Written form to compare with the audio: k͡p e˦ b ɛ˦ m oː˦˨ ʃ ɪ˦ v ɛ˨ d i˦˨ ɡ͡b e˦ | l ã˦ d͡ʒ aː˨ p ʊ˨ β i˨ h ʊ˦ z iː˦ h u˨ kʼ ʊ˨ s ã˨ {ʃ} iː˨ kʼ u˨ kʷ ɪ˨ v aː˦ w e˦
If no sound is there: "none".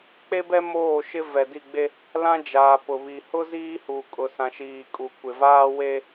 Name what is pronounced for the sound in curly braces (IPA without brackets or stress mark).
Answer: ʃ